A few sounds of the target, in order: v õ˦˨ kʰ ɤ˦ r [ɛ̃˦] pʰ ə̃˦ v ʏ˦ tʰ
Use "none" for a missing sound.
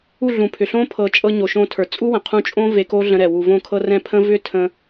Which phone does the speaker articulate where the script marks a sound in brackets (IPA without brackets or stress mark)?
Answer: ɛ̃˦